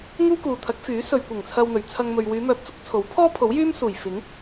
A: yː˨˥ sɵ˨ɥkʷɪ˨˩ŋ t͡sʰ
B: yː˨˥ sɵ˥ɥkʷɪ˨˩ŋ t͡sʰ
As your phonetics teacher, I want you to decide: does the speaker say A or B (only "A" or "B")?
A